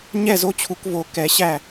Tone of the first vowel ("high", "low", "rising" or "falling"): falling